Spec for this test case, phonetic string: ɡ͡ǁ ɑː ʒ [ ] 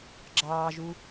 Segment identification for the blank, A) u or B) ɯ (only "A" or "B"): A